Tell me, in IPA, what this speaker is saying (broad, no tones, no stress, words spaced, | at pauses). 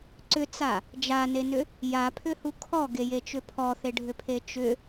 ǀʏt͡sa | d͡ʒanenʏ | japʰʏhu kʰɔɡejet͡ʃʏ pʰɔθeɖʱʏpʰe t͡ʃʏ